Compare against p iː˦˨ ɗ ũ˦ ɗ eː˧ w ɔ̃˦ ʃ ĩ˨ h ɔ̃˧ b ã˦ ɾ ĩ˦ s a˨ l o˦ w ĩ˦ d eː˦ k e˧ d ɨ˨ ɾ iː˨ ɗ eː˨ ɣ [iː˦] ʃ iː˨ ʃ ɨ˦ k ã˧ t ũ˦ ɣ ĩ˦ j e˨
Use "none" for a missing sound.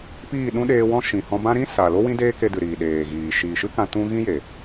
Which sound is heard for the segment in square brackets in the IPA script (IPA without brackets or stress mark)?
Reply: iː˨